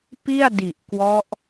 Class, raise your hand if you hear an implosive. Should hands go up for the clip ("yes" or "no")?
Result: no